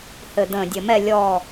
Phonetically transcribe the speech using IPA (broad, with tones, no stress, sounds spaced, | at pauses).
h ɘ˨˩ d̪ ə̃ː˨˩ dʲ ə˨˩ m ɛ˦˨ lʲ ɔ˦˨